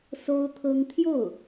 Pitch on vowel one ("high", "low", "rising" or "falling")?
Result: high